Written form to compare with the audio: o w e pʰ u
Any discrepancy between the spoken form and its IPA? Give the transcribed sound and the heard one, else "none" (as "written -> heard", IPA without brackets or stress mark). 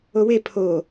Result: u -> o